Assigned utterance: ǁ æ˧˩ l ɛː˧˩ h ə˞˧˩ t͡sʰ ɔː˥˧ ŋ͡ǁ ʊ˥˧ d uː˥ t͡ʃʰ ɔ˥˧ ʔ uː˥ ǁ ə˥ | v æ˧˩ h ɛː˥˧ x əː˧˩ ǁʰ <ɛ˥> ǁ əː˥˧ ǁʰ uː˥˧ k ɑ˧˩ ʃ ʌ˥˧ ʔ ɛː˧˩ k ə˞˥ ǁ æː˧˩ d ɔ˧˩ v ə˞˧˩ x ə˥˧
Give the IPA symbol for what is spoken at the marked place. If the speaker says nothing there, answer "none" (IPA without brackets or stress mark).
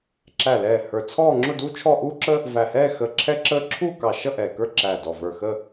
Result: ɛ˥